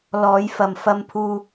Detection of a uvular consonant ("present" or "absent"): absent